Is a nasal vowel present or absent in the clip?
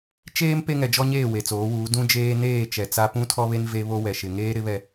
present